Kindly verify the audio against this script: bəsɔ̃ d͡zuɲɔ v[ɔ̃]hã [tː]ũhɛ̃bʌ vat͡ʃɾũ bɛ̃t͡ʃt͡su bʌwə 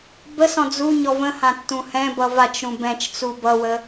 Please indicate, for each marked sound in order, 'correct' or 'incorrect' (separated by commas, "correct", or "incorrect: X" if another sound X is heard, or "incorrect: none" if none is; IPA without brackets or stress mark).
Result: incorrect: ə̃, correct